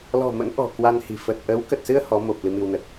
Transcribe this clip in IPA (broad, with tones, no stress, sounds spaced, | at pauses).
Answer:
l ɔ̤˨˩ m ə̰˧˥ n ʔ ɔ̤˨˩ k w a˧ n h i̤˨˩ f ə˨˩ t̚ ʔ ə˨˦ w k ə˨˩ t̚ s ɨ˧ ə̯ h ɔ˨˦ m o˨˩ p̚ l ɨ˧ m i˧ w n ə˨˩ t̚